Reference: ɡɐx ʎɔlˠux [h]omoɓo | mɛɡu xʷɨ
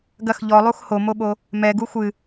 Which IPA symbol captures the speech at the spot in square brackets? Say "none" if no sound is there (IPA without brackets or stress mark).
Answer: h